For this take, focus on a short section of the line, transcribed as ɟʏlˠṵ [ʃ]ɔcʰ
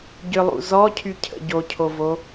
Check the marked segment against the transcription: incorrect: z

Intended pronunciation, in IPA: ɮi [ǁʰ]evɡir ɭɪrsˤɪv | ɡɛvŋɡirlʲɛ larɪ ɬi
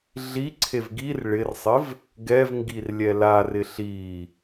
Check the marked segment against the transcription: incorrect: ǀʰ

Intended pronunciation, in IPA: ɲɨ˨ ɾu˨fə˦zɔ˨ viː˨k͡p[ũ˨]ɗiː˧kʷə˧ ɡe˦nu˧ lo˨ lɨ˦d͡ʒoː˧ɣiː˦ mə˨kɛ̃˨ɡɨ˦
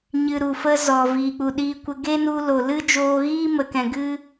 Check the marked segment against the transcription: incorrect: u˨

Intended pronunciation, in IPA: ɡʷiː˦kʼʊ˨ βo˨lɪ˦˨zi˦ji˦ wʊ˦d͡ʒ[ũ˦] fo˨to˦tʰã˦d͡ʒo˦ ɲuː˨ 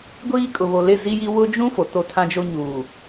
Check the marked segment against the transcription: correct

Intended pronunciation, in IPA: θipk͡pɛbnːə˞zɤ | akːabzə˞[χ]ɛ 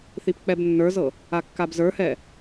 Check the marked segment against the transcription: incorrect: h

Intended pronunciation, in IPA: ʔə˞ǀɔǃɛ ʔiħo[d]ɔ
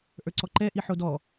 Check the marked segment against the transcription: correct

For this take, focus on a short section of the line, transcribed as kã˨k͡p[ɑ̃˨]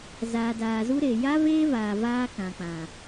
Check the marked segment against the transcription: incorrect: ã˨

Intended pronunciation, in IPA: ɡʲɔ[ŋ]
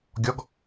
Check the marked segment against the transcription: incorrect: ɡ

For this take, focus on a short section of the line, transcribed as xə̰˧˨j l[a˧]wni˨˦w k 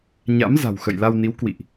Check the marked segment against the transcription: correct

